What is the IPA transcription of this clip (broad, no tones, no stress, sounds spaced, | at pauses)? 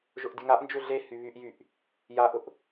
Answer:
ʒ ʊ ʔ dʲ ʊ ŋ a ʔ n d͡ʒ ʏ ɮ e h y β y ʔ j y ʔ | j a ʔ ʊ ʔ